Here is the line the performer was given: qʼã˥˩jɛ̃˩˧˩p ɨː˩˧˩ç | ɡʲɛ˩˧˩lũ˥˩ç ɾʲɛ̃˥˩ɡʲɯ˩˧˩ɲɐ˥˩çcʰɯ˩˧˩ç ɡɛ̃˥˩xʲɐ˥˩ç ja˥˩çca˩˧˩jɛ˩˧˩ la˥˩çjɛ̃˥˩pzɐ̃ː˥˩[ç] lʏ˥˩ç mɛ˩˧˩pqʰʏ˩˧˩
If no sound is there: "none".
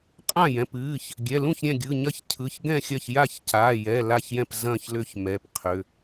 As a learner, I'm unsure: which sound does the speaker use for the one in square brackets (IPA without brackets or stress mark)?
ç